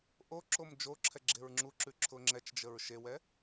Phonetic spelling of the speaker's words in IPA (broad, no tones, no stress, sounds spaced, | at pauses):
ʔ o ǁ o m d͡ʒ o ǁʰ ɛ ɡ͡ǁ e ɹ ŋ͡ǁ u ǁ ʉ ǁʰ ʊ ŋ͡ǁ ɛ t͡ʃ d͡ʒ ə ɹ ʃ e w ɛ